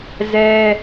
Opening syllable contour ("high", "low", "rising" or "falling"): high